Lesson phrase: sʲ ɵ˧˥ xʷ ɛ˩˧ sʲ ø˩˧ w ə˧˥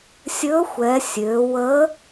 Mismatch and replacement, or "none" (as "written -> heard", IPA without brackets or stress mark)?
none